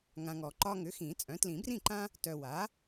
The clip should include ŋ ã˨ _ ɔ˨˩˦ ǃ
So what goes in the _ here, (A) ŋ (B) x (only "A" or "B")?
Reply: A